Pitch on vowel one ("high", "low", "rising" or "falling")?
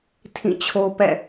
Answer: falling